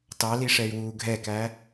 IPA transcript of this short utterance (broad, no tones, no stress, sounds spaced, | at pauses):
t ɑ l i ʂ ɛ y̯ w uː ɡʱ ɛ k æ